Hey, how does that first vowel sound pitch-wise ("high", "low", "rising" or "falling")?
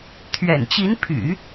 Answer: low